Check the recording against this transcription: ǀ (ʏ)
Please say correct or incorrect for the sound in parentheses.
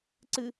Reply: incorrect